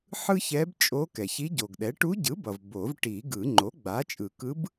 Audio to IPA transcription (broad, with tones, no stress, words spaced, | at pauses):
ħɯ˥çɛ˧˥bt͡ʃʼo˧˥kɛ˩ç i˧˥ɟo˩ɡɗɛ˩˥ ʈu˧˥ɟɯ˩˥bʌ˩v bo˨˩˦vʈi˨˩˦ɡɯ˨˩˦ ŋ͡ǃo˩˥ɡ͡ba˩˥t͡ʃʼɯ˨˩˦ kɯ˧˥b